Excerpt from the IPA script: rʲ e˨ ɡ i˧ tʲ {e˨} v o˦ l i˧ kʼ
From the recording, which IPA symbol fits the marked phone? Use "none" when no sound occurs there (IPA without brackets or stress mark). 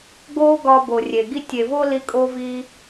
e˨